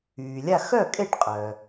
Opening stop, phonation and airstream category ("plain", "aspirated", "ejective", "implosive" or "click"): ejective